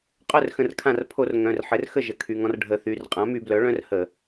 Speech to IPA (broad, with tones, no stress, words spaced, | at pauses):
qʼœ˥˩rxə̃˧˩r kʰã˧˩rpʰo˧˩˧r ŋœ̃˩˧˩rħɘ˩˥rxə˥˩ ʒə˩˥kʰy˩˧˩ŋɔ̃˦r ɖʱə˧˩˧θy˩˧˩r qʼã˩˥my˧˩˧blœ˩˥ ɭœ̃˦rhə˧˩˧